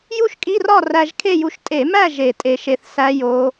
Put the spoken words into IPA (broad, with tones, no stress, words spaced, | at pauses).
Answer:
ju˥˨ʃkʼi˧˥˧rɒ˥˨ ræ˧ʒkʰe˥˨ju˧ʃ tʼe˧˩˧mæ˥˨ ʒe˧˩tʼe˧ʃe˧θ sæ˦˥ jo˦˥